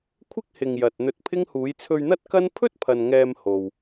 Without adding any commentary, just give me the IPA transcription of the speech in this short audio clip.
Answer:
kʷʰ ɪ˥ k̚ h ɪ˨ ŋ j ɐ˨ t̚ n̪ ɵ˧ t̚ pʰ ɪ˥ ŋ h uː˨˧ j t͡sʰ ɵ˧ ɥ n̪ ɐ˥ t̚ k ɐ˥ n pʰ ɵ˥ t̚ pʰ ɐ˨ n ŋ ɛː˧ m h o˨ w

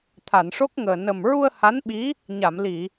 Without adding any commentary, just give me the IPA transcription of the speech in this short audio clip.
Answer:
t̪ʰ a˨˩˨ n ʂ o˦˥ k̚ ŋ əː˨˩ n ə˨˩ m ɹ u˧ ə̯ h a˧˥ n ɓ i˧˥ | ɲ a˨˩˨ m l i˨˩˨

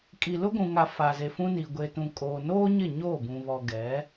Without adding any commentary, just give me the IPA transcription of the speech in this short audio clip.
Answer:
kʼ i˨ l ʊ˦ ɡʷ ũ˨ ŋ a˨ f a˨ z e˨ f ũ˦ n i˨ ɡʷ e˨ t ũ˨ kʼ oː˨ n oː˦ ɲ ɪ˦˨ ɲ oː˦˨ b ũ˨ β ɔ˨ ɡ ɛ˨˦

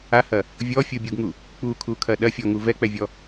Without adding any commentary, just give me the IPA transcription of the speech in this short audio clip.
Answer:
a h ɐ | vʲ ɔ fʲ u bʲ u ɡ ŋ u | k͡p u kʰ u kʰ ɐ ɗ ɐ fʲ ɔ ŋ u v ɛ k͡p ɛ vʲ ɔ

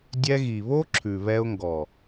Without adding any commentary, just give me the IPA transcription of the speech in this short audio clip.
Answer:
dʲ ɛ˧ ɣ i˨ β o˦ ǁʰ ʉ˨ β ɛ˧ ʊ̯ ŋ ɡ ɔ˨

